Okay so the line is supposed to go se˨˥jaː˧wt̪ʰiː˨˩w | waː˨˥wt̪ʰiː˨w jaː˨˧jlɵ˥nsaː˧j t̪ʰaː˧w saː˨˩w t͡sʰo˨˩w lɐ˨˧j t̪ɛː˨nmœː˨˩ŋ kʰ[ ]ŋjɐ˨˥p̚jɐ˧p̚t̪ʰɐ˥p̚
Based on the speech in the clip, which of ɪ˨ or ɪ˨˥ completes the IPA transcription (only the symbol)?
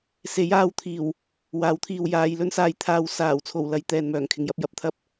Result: ɪ˨